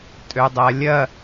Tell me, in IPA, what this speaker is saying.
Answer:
tʼ ø dˤ ɐ lʲ ɐ

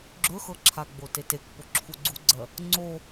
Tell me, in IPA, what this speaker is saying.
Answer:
ɡ͡ǁ ɵ x ɤ ǁʰ a ɡ͡b o t e t e k p o ǁʰ u ɡ͡ǀ u ɡ͡ǀ ɜ | ŋ͡ǀ o

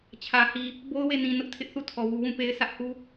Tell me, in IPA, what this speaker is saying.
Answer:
t͡ɕʰ ä˨ h i˨ | b o˦ ʊ̯ w e˦˨ n ĩ˨ n ʊ˦ ʔ tʰ ɪ˦ ʔ θ u˦˨ tʰ ɔ˨ w u˨ w ũ˦˨ p e˦ ɪ̯ sʰ ä˦ ʔ h u˦

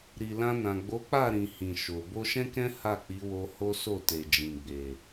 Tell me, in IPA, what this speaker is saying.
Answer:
ɾ i˨ l ã˧ n ã˨ ɡ͡b o˨˦ k͡p a˦˨ ɾ ĩ˨ h ĩ˨ ʃ o˨ b o˧ ʃ ɛ̃˦ k ɛ̃˦ h a˦˨ k͡p i˨˦ w o˧ h o˦ s o˦˨ t e˨ d͡ʒ ĩ˨ ɡ͡b e˨

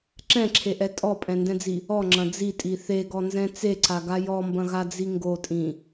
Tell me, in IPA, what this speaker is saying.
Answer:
ǁ ɛ̃ ǁʰ e ʔ ɛ tʼ ɔ pʼ ɛ̃ n d ɛ̃ d͡z i | ɔ ŋ͡ǁ ɐ̃ d͡z i tʼ i θ e ɡ ɔ n z ɛ̃ t͡s e ǀ a ɡ a j ɔ m b ɐ̃ ɣ a d͡z i ŋ ɡ o tʼ ĩ

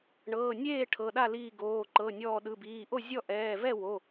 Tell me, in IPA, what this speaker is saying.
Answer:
ɳ ɤː˩˧˩ nʲ eː˥˩ ʈʰ ɤ˩˧˩ ɗ a˥˩ l iː˧˩ ɡ oː˩˧˩ ǃ ɤ˩˧˩ nʲ ɔː˧˩ ɗ ɯ˩˧˩ b iː˩˧˩ ʔ o˥˩ zʲ ɔ˥˩ ʔ ɛː˩˧˩ v ɛ˥˩ w o˩˧˩

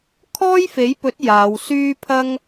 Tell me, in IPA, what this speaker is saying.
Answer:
kʰ ɔː˥ j f e˨˥ j p ɵ˨˥ t̚ j aː˨˧ w s yː˥ pʰ ɐ˥ ŋ

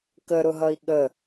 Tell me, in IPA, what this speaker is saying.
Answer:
k ə ɾ ʊ ɦ ʌ i̯ ɠ ə

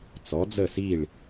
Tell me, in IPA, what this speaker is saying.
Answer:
t͡s ɔ˩˧ d͡z ə˧˩ s i˧˩ ɭ

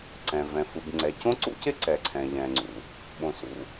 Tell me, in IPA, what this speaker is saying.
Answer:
ǀ ɛ̃˩ v ɛ̃˩ f ɯ˩ b ŋ͡ǀ ɛ˩ c õ˥ ǀ ṵ˥ c ɪ˥ ǀ ɛ˩ ǀʰ ɛ̃˩ ʎ ɛ̃˩ ŋ͡ǀ ṵ˩ | ɓ õ˩ s ṵ˩

